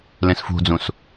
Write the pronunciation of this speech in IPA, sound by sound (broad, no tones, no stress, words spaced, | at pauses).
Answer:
lẽsfṳd͡zũs